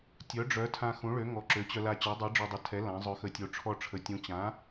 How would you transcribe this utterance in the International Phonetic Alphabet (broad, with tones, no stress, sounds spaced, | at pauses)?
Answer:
tʲ œ˩˥ ɖ͡ʐ œ˩˥ tʰ ã˧ x ũ˩˥ ɭ ø˩˥ ŋ ɔ˩˥ ǁ ø˩˥ t͡ɕ œ˧ l a˧ t͡ɕ œ˩˥ dˤ i˩˥ ɖ͡ʐ ø˧ dˤ ə˩˥ tʰ ɛ˩˥ l ã˩˥ zˤ œ˧ x ə˧ tʲ o˧ ʈ͡ʂʰ ɔ˧ ʈ͡ʂʰ ə˩˥ tʲ ũ˩˥ t͡ɕ ã˩˥